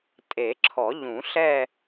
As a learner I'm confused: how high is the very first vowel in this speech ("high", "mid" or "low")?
mid